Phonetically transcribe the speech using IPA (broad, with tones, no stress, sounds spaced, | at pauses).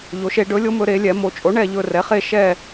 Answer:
ʎ o˩˧ ʃ e˩˧ ɖ ɵ˩˥ lʲ o˩˥ m ɵ˩˧ ɾ e˩˧ lʲ ɛ˩˧ m o˩˧ t͡ʃʼ o˩˥ ɳ ɛ˦˨ ʎ ɵ˦˨ r ɛ˩˥ χ e˦˨ ʃ ɛ˦˨